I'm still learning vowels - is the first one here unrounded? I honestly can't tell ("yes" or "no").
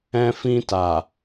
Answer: yes